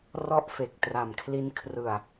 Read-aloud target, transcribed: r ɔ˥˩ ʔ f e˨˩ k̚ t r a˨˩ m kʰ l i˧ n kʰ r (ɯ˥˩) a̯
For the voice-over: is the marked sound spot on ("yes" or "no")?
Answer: no